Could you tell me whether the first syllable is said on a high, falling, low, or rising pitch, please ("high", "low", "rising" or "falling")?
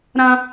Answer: high